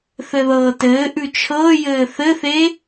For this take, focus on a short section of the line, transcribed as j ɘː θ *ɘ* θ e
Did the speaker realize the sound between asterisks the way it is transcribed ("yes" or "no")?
yes